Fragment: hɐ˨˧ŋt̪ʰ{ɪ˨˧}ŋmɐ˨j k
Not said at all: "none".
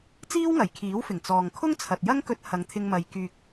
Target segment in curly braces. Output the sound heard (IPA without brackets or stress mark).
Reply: ɪ˧